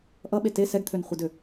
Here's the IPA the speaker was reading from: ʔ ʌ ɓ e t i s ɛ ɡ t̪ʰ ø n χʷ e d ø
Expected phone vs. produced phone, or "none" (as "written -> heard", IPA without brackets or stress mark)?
i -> e